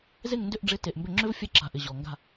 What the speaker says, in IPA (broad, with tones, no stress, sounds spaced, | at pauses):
z e˦˨ ŋ n d ʏ˦˨ ʔ ɖ͡ʐ ɪ˨˥ t e˨ ʔ m b ʏ˦˨ ŋ͡ǁ ʏ˥ v fʲ ɛ˦˨ ǁ a̤˨ ʔ ɪ˨ ʑ ɔ˨ ŋ ɡ a̤˦˨